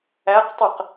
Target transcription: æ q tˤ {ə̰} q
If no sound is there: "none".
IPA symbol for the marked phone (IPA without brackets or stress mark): ə